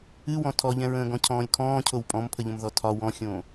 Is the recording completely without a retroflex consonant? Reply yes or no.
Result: yes